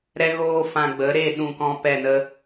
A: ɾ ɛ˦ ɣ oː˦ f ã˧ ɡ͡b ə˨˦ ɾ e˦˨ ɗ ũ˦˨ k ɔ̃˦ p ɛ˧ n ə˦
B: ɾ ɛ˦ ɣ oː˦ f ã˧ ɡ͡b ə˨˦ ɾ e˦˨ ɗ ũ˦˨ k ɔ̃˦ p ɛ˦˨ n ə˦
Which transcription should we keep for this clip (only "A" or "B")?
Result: B